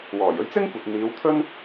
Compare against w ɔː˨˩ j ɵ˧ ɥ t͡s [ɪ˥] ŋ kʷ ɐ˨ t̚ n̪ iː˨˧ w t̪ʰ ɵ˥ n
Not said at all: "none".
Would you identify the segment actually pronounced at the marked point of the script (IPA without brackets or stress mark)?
ɪ˥